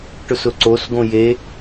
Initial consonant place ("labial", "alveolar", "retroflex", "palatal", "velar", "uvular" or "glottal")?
retroflex